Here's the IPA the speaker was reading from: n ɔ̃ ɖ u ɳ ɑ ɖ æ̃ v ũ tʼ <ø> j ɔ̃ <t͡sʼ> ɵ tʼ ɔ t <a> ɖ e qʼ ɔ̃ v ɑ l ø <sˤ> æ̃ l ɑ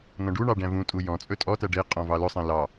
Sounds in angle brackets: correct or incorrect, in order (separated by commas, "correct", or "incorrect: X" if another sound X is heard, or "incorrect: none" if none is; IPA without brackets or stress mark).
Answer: incorrect: u, correct, incorrect: æ, correct